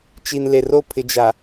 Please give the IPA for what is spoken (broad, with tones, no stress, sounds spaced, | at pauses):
t͡ʃ i˨ n l e˨ r o˦˨ pʰ ɪ˨ d͡ʒ a˨